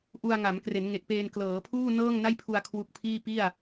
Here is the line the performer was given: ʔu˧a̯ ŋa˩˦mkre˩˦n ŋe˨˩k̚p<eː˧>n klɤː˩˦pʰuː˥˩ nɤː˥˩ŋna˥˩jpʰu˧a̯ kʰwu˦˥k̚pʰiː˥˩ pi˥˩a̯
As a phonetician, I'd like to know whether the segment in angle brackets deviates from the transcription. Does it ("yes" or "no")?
no